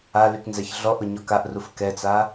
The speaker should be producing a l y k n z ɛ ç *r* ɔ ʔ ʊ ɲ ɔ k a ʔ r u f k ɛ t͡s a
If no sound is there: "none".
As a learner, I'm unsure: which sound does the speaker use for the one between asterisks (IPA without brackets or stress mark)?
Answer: ɮ